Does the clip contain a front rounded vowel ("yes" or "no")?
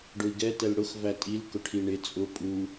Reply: no